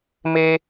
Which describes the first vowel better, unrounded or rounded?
unrounded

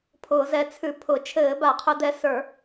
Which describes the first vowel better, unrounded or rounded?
rounded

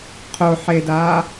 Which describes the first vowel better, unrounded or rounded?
rounded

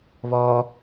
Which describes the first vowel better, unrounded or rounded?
rounded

